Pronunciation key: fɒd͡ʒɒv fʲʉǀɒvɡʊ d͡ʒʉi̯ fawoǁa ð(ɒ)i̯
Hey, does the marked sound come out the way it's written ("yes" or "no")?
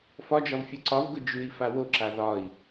yes